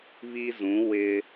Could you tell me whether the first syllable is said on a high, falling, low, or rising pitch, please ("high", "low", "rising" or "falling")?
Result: high